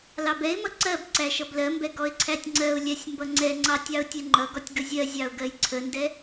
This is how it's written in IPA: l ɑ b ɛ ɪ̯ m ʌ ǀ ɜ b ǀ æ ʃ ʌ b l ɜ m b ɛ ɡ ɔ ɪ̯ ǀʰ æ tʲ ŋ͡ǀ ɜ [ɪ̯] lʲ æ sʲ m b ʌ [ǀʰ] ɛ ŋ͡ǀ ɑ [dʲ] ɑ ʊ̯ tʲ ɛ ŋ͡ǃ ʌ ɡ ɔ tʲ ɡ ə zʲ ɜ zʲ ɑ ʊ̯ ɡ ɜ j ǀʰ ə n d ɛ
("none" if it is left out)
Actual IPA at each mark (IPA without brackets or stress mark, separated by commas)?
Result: ʊ̯, ŋ͡ǀ, tʲ